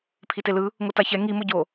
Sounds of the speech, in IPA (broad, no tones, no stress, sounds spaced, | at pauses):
pʰ i t e l ɯ | ŋ o t a ç ɛ ŋ i m o ɟ o